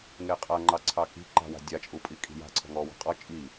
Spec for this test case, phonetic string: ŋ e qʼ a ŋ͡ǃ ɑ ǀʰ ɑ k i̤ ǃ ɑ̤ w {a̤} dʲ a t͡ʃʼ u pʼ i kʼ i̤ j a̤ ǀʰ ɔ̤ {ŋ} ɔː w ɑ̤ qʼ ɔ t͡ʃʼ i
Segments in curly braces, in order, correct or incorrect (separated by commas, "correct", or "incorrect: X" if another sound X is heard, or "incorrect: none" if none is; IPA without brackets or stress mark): correct, correct